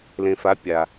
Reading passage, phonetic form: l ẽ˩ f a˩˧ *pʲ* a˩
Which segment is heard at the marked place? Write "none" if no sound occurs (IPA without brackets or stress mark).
pʲ